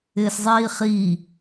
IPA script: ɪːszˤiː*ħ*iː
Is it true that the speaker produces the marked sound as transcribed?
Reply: no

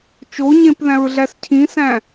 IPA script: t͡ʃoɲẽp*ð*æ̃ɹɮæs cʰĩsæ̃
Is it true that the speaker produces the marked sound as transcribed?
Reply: yes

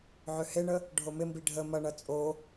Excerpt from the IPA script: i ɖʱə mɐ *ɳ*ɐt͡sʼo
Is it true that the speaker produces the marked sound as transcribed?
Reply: yes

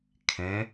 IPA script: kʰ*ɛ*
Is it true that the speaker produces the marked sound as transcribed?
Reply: no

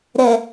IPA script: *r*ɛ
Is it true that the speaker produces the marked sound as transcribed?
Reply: no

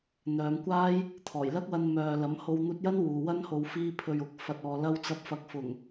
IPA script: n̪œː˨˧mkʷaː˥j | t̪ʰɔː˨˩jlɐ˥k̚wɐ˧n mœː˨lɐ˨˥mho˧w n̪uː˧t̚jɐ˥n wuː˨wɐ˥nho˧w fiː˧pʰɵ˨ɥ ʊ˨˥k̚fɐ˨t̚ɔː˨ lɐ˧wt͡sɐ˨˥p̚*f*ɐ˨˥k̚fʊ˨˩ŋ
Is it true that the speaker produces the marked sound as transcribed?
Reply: yes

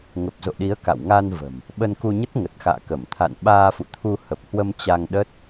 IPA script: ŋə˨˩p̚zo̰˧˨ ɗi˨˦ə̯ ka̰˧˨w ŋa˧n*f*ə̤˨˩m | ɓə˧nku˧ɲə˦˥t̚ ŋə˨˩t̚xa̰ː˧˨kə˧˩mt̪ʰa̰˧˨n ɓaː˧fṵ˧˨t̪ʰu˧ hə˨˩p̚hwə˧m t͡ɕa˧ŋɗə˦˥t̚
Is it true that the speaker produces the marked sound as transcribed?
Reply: no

